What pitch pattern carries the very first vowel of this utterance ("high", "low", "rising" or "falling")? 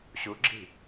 rising